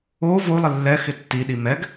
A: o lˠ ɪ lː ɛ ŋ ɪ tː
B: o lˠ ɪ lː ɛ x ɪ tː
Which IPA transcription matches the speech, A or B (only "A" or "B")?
B